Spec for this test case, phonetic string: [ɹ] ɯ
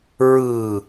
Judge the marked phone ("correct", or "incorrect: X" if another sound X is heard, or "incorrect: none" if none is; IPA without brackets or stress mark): correct